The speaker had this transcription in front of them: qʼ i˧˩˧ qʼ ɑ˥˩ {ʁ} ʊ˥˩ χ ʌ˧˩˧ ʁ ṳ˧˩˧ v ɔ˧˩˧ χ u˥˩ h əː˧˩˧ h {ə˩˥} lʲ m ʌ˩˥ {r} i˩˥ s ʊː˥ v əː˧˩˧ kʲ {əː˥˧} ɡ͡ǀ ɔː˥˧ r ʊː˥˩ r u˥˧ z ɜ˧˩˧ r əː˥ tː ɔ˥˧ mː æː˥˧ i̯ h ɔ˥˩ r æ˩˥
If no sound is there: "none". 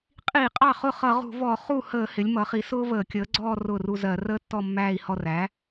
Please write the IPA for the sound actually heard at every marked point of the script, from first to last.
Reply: χ, ɪ˩˥, χ, əː˩˥

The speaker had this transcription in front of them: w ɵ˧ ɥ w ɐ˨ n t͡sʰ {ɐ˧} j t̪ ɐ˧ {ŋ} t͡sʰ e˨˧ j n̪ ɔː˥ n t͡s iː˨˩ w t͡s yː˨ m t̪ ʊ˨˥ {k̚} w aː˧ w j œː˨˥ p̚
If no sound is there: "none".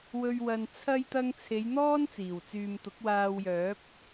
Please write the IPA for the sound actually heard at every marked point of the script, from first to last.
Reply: ɐ˧, ŋ, k̚

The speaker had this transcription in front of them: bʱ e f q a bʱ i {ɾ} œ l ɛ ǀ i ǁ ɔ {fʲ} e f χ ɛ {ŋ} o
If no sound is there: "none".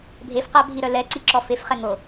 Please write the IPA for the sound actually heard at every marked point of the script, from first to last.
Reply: ɾ, f, ŋ

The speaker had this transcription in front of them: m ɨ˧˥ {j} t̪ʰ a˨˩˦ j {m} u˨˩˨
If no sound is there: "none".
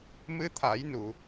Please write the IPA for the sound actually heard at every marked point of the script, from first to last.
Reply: none, n

